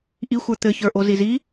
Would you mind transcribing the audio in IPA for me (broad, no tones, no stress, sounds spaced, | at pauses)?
ʔ i xʷ ə˞ t̪ ɘ ç ə˞ ʔ o z i z i